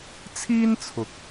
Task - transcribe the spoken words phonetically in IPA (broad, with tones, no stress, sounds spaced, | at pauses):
t͡sʰ iː˥ n t͡sʰ ʊ˨ k̚